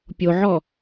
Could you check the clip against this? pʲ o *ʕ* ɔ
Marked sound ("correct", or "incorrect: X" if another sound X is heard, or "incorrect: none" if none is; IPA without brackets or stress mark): correct